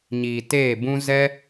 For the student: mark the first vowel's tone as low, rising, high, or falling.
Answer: low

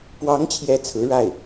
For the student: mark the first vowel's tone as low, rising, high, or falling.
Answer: rising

